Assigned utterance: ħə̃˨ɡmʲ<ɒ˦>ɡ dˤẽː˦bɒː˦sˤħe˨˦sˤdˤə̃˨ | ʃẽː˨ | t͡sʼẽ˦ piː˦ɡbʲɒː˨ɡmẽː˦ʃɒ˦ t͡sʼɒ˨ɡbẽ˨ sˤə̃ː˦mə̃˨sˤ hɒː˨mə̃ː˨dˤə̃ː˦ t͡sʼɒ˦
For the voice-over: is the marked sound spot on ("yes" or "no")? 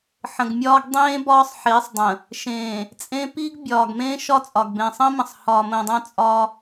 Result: no